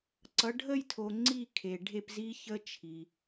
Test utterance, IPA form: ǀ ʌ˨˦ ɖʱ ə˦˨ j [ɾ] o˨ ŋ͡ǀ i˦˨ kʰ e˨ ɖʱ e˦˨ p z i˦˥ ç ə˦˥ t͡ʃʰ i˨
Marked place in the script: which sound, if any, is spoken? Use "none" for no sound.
tʰ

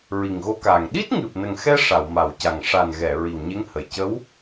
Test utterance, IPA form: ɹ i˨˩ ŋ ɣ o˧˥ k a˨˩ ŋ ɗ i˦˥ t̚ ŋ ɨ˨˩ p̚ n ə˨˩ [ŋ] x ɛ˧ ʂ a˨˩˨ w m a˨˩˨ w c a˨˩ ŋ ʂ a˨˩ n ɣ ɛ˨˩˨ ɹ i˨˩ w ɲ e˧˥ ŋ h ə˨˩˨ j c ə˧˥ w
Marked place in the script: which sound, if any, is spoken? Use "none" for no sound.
ŋ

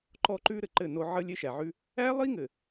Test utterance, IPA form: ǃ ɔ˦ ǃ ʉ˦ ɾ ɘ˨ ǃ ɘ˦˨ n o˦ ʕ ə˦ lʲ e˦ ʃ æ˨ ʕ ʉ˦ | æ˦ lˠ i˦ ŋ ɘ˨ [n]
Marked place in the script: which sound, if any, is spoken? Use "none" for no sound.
none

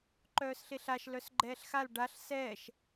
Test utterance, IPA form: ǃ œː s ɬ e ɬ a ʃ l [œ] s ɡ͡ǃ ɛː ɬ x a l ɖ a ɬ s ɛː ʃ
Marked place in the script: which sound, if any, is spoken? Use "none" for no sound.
œ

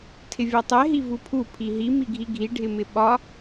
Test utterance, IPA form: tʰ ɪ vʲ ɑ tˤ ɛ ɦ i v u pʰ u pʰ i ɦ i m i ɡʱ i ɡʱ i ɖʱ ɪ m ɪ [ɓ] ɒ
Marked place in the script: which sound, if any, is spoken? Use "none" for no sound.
ɓ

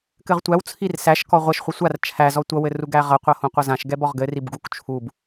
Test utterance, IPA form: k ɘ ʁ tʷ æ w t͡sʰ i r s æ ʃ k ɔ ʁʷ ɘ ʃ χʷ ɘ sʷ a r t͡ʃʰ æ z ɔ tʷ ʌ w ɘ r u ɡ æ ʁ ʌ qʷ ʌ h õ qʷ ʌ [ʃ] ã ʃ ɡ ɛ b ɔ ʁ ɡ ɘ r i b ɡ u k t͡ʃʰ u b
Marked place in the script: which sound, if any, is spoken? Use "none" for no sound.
z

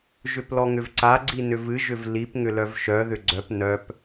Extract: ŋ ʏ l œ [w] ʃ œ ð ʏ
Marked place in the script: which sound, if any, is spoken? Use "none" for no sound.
v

